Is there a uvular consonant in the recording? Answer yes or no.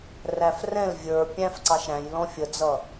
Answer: no